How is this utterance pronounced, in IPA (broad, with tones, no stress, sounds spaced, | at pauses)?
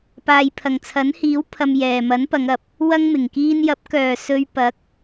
p aː˨ j pʰ ɐ˨˩ ŋ t͡sʰ ɐ˨˥ n h iː˨˥ w pʰ ɐ˧ m j ɛː˨ m ɐ˨˥ n p ɐ˨˧ ŋ ɐ˨ p̚ | w ɐ˥ ŋ m ɪ˨˩ ŋ k iː˧ n j ɐ˨˥ p̚ k œː˨ s ɵ˧ ɥ p ɐ˨˥ k̚